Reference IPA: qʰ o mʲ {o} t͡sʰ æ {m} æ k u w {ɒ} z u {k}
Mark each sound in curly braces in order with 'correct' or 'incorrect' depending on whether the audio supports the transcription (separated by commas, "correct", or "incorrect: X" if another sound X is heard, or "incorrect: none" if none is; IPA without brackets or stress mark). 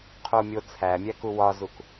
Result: correct, incorrect: mʲ, correct, correct